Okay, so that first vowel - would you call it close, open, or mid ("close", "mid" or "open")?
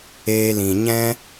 mid